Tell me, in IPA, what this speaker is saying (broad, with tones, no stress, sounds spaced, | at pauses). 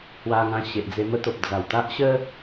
h w a˧ ŋ ã˧ ɕ e˨ ʔ d͡z e˧ m ə˦ t̪ o˨ p̚ d͡z a˨˩ w t̪ a˦ ʔ ɕ ə˦